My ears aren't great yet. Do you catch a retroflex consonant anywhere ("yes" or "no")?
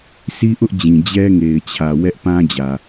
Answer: no